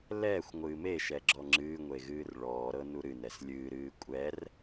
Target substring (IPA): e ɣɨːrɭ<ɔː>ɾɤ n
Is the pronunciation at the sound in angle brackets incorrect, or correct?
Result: correct